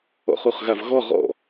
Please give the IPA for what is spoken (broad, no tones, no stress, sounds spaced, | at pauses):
ɔ̰ χ u χ ɣ a v ɣ ɔ ʁ ɔ̰